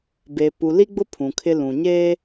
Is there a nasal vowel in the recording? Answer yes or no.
yes